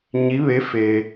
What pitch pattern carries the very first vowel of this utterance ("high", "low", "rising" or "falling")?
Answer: rising